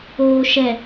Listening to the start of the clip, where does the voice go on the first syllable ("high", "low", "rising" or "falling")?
low